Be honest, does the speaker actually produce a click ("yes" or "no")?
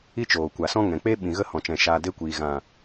no